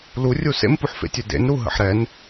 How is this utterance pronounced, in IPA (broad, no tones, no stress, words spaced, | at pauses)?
lurʲu sḛmpuħfḛtʲø dḛnɾu ɦə̰ħɾɛn